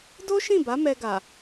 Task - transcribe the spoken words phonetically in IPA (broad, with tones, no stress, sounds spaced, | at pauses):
d o˦ ʃ ĩ˦˨ b a˨˦ m ɛ˧ ɡ a˨